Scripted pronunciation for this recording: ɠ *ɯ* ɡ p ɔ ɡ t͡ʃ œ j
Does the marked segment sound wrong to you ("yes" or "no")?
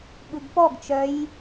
no